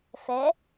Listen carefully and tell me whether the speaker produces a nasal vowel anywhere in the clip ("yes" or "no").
no